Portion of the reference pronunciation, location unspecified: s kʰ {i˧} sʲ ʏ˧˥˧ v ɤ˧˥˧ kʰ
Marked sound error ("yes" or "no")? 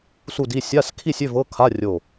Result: yes